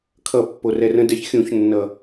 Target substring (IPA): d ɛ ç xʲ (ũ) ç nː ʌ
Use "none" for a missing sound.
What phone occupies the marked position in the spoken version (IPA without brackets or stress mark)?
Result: ũ